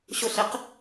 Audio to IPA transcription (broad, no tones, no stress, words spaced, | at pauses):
ɕʊɬeq